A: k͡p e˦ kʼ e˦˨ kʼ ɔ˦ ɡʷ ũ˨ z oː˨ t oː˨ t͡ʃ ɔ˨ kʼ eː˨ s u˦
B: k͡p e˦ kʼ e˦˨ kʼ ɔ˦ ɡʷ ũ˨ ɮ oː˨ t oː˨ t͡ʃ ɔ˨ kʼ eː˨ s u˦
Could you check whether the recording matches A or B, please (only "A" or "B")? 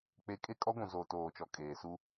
A